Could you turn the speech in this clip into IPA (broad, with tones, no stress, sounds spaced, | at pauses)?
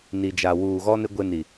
n i˨ d͡ʒ a˨ w uː˨ ɣ ɔ˦ n ɪ˦ ɡʷ e˦ n i˨